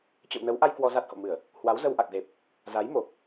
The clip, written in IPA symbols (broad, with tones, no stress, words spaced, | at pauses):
t͡ɕə̰˧˨wnə˨˦wʔa˧j kwɔ˧za˦˥t̚ho̰˧˨mɨ˧˩˨ə̯ | hwa˨˦wzə˧wʔa˨˩k̚ze˨˩p̚ | za˨˦jmo˨˩k̚